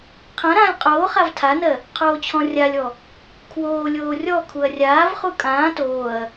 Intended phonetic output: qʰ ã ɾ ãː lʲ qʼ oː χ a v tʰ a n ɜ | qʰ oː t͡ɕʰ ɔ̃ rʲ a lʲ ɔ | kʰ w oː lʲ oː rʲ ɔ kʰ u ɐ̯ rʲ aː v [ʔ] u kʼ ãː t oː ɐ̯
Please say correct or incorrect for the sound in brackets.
incorrect